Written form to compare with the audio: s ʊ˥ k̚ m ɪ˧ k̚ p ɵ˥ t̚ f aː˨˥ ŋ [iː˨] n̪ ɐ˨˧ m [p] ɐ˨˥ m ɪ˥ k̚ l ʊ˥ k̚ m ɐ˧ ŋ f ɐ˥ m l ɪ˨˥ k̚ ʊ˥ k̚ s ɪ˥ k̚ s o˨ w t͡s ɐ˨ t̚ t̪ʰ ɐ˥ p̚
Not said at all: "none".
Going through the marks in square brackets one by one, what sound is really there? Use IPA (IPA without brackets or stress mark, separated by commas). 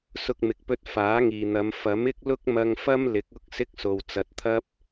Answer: iː˨, f